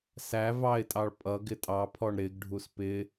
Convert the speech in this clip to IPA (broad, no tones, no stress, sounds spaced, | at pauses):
s æ v ɑ ɪ̯ tʼ ɑ ɭ pʼ ʌ ɡ ɪ tʼ ɑ pʰ ɔ ɳ ɾ ɪ ɡ ɖʱ u s p ɪ